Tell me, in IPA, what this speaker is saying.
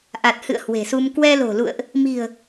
ʔ a˨˩ t̚ h ɨ̰˧˨ ə̯ h w e̤˨˩ s u˧ m k w ɛ˧ l o̤˨˩ l ṵ˧˨ ə̯ ʔ | m i̤˨˩ ə̯

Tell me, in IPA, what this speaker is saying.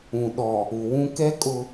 ũ˨ ɗ ɔ˨ | u˨ w ũ˦ k ɛ˦ kʼ ʊ˦

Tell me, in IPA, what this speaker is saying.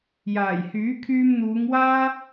j aː˨˩ j h yː˨˥ kʰ yː˧ m n̪ uː˨˧ ŋ w aː˥

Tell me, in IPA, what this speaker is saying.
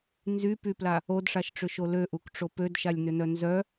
n z y p y p l a | o d ʂ a ʃ ʈ͡ʂ ʏ ʃ o l ø ʔ u k ʈ͡ʂ o p ø d ʃ a lʲ n ʏ n œ n z œ

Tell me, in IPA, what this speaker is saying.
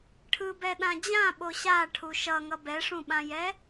ʈʰ ɯ b ɛ ɗ ã d͡ʑ ã ɓ o ɕ a ʈʰ u ʃ ʌ ŋ ʌ b ɛ ʂ ũ ɓ ã j ɛ

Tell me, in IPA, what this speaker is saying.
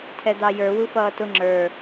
tʰ ɛ d̪ ɑ j ə˞ w u f ʌː t ʊ ŋ͡ǁ ə˞

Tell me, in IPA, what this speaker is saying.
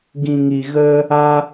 ɡ ĩ˨ ŋ i˨ ɣ ə˧ | a˧

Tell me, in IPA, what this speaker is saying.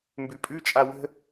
m b ʉ pʼ ʉ t͡ʃʼ a w ə̤

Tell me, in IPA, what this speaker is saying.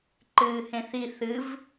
ǃ ɨː h ẽ θ i θ ɨ v

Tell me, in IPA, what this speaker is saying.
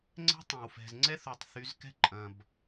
ŋ͡ǀ ɛ̤˦ tˤ ẽ˨ w f ɛ̤˨ z ŋ͡ǀ ɛ˦ θ u˨ tˤ θ y˨˦ z k ɛ̤˦ ǃʼ ɐ̃˨ b

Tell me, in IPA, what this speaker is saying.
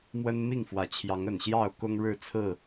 m w ə˦ n m i˥˨ ŋ f w ä˨˦ t͡ɕʰ j ɑ˨˦ ŋ ə˨˩ n ɕ j ɑ˥˨ ʊ̯ k ʊ˦ ŋ ɻ ɻ̩˥˨ t͡sʰ ɹ̩˥˨

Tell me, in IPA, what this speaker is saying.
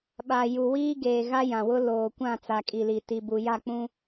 ɓ a˨ j u˨ w iː˦ ɡ eː˨ ɣ a˦ j ã˨ w ʊ˦ l oː˨ kʷ ã˦˨ t͡s a˨ kʼ i˨ l i˨ t i˨ b u˨ j a˦˨ k͡p ũ˦

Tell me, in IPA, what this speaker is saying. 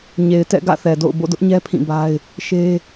ɲ e˨ ɪ̯ t ɛ̰˦˨ ɡ ä̰˦˨ θ ɛ˨ d o̰˦˨ ʊ̯ b o̰˦˨ d ʊ˦ ʔ ɲ ɛ˦ pʰ ĩ˦˨ b a˦ ɪ̯ | ʃ e˦

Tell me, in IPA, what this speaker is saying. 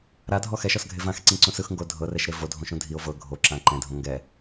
ɾ a dʱ ɔ x ɛ ʃ ɔ s ɡʱ e v ã x ǀ ĩ ǀ ũ s ɯ x ŋ ɡ o dʱ ɤ r ɛ ʃ ɾ e v o dʱ õ ʃ ũ dʱ i o̯ v ɤ ɡʱ o ǁ ã ǃ ɛ̃ dʱ õ ŋ ɡ ɛ

